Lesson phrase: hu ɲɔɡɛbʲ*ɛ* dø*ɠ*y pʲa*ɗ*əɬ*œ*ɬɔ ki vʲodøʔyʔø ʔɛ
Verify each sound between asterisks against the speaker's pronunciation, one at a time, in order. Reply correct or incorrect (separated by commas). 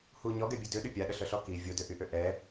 correct, incorrect, correct, correct